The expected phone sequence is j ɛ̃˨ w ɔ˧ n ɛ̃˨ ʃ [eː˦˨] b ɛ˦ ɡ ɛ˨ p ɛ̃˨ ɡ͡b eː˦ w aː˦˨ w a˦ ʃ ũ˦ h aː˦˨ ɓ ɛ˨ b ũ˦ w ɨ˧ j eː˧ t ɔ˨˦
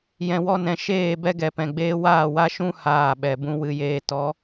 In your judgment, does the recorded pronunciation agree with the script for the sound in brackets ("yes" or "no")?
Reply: yes